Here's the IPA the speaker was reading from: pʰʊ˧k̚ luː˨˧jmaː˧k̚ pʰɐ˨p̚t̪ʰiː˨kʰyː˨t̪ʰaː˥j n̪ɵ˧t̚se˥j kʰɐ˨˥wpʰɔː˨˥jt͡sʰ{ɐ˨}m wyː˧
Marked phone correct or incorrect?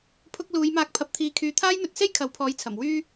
incorrect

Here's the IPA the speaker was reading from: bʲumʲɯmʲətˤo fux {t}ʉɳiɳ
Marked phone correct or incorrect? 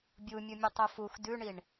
incorrect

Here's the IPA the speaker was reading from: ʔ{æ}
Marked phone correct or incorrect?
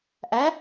correct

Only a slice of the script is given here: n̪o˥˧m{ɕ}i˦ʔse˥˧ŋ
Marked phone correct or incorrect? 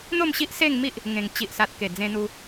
correct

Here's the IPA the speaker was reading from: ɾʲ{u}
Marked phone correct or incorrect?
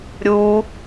correct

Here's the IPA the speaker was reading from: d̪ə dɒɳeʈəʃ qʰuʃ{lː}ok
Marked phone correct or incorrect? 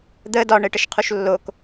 correct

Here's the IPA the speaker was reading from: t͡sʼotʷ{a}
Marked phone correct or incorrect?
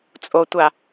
correct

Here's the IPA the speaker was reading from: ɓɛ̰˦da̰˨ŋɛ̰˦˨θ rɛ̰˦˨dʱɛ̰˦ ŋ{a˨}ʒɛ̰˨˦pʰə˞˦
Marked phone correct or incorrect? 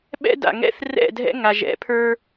correct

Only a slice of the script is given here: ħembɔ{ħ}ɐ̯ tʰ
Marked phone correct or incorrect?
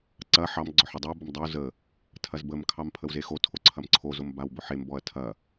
incorrect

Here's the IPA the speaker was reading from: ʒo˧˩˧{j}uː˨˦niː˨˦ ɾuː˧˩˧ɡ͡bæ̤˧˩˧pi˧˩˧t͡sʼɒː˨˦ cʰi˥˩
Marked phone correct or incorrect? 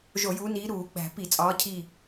correct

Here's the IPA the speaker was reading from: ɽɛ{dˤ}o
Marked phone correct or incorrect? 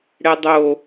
correct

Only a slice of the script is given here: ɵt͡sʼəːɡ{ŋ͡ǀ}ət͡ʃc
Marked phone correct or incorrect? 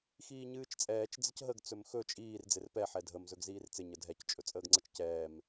correct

